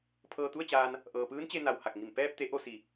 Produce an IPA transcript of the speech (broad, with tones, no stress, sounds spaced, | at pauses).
pʰ ɤː˧ t̪ u˥˨ ə̯ t͡ɕ aː˧ n | ʔ ɤː˩ p ɯː˧˥ n t͡ɕ e˧ n a˩ w h a˧˩ k̚ ŋ i˧˩ m p ɛː˧ p̚ t̪ e˩˧ ʔ o˥˨ s i˩˧